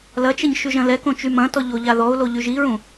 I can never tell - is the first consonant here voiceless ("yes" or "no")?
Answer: no